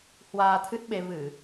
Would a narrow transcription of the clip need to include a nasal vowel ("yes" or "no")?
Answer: no